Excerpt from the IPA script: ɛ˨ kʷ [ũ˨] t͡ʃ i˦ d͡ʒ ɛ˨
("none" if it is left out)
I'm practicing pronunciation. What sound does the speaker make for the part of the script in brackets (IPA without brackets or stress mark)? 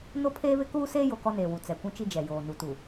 ũ˦